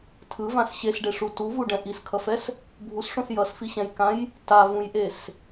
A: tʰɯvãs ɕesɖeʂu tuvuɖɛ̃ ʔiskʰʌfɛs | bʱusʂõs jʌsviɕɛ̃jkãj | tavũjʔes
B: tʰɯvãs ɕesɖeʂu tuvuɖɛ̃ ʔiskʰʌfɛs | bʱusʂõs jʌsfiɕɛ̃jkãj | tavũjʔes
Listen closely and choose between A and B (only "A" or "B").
B